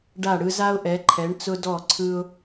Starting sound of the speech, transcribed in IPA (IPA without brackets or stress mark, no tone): ɖ